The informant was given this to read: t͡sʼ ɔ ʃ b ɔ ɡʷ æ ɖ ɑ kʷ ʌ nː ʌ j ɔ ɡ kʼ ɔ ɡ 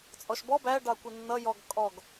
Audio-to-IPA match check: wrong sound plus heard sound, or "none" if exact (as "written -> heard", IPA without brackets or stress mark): ɡʷ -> b